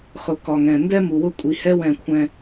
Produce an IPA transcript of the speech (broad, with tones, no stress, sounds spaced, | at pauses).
χ ʊ˨ k ɒ˨ ŋ ɛ̃˨ n d ɛ˦ m u˨ w ʊ˦ kʷʼ i˨ h ɛ˦ w ɛ̃˦˨ kʷʰ ɛ̃˦